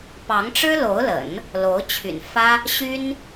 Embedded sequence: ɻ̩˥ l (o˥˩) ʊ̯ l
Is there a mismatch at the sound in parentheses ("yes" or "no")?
yes